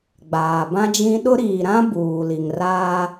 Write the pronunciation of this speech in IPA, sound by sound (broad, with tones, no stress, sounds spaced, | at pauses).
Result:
ɡ͡b aː˨ b ã˦ d͡ʒ ĩ˦ ɗ ʊ˦ ɾ iː˨ ɾ ã˦ b uː˨ l i˨ ŋ r aː˦